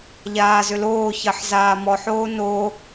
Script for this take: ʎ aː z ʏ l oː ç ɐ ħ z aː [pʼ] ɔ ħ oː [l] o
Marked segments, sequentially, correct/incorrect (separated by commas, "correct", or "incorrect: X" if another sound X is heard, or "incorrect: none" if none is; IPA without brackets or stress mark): incorrect: m, incorrect: n